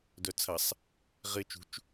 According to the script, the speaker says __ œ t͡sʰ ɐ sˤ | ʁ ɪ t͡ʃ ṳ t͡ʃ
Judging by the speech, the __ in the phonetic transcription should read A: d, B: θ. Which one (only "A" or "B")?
A